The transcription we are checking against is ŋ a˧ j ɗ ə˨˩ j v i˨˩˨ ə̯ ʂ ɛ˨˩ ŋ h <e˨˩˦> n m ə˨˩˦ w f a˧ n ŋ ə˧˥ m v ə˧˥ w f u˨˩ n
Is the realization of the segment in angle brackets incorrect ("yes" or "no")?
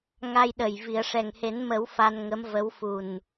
no